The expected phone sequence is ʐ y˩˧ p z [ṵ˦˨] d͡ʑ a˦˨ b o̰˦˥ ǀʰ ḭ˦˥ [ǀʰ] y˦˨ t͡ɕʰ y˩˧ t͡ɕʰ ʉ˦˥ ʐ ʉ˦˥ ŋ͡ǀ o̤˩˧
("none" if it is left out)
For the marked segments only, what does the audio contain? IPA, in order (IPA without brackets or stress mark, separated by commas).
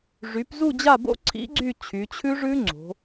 u˦˨, ɡ͡ǀ